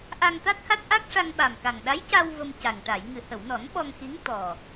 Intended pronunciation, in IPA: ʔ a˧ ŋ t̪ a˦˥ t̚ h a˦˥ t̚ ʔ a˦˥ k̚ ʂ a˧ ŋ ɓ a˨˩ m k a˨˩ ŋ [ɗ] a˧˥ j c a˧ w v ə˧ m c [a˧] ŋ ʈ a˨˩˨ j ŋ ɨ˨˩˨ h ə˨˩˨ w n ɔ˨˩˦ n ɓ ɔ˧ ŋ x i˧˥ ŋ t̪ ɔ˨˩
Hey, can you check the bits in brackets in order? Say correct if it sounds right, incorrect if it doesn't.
correct, incorrect: a˨˩

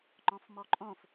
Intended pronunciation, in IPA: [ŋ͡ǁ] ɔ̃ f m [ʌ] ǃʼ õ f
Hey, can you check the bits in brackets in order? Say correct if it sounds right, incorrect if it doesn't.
incorrect: ŋ͡ǃ, incorrect: ɔ

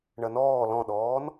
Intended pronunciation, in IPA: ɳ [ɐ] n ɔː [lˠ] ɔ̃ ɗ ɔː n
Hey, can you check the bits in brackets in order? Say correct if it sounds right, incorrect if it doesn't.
correct, incorrect: l

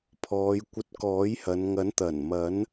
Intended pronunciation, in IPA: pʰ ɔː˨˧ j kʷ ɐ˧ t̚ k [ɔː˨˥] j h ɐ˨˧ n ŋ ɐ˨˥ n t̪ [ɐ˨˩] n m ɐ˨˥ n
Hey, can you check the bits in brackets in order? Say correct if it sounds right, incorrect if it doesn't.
correct, correct

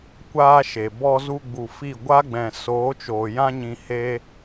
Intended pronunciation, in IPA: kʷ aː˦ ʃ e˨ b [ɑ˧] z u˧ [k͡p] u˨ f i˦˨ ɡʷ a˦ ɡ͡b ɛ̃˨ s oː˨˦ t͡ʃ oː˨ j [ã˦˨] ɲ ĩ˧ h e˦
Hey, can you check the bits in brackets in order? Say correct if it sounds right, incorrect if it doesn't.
incorrect: ɔ˧, incorrect: ɡ͡b, incorrect: ã˦

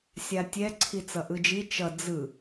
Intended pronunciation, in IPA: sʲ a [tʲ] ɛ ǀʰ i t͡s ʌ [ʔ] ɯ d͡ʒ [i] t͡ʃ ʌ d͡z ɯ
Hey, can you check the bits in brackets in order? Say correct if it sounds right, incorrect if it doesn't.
correct, correct, correct

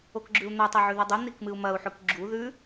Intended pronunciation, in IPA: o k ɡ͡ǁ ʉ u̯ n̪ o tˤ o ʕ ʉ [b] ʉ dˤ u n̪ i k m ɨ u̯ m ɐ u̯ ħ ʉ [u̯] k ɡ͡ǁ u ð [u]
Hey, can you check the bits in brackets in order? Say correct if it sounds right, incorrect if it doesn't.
incorrect: ð, incorrect: none, incorrect: ʉ

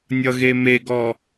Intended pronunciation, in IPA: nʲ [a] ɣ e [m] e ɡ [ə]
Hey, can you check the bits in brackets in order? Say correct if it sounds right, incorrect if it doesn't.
incorrect: ʌ, correct, incorrect: ɔ

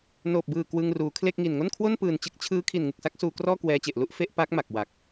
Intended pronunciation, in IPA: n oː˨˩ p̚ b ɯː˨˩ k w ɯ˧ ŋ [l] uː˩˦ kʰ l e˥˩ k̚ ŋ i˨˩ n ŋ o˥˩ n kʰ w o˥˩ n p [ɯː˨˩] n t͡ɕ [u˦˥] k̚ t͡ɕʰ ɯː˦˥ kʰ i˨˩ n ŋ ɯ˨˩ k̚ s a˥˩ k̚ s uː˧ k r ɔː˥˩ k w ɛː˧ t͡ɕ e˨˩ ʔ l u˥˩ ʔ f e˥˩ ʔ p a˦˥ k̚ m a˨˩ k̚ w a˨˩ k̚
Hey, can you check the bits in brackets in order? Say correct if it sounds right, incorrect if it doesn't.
incorrect: r, correct, incorrect: ɯ˦˥

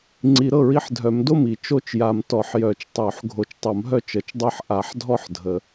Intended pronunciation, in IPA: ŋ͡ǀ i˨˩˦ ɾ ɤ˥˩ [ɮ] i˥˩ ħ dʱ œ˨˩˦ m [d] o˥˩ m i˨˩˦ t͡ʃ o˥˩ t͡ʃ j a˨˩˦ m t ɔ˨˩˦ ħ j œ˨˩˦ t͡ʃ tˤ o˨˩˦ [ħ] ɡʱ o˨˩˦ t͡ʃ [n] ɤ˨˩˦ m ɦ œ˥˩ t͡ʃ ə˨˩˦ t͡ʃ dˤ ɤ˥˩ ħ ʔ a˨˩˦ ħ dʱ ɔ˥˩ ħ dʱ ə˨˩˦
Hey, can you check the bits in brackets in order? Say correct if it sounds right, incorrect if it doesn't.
incorrect: ɹ, correct, correct, incorrect: tˤ

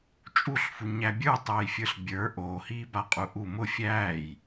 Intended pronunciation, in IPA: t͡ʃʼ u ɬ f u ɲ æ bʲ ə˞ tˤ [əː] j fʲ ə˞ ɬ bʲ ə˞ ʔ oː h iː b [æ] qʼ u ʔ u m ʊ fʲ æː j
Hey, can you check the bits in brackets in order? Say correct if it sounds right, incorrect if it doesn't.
correct, incorrect: a

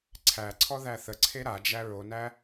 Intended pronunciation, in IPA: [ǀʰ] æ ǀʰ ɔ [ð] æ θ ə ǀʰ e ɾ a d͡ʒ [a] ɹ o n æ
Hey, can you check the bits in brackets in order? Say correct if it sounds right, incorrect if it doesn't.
correct, correct, incorrect: æ

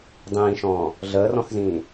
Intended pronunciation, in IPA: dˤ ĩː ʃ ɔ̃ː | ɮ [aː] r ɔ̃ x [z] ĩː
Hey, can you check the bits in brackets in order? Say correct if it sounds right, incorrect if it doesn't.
incorrect: əː, correct

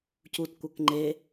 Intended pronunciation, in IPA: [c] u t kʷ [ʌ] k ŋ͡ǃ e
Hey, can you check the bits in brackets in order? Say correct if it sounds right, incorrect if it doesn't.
correct, correct

